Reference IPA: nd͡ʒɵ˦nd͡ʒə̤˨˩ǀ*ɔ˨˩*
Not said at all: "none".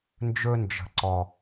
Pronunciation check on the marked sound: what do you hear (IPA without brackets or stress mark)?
ɔ˨˩